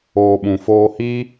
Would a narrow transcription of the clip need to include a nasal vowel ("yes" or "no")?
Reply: yes